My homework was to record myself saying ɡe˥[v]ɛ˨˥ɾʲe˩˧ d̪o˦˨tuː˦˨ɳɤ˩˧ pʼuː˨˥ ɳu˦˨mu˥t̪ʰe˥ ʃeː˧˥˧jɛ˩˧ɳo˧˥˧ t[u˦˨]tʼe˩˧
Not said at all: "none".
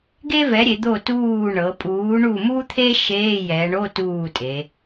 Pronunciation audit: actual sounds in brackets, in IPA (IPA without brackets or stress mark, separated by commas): v, uː˦˨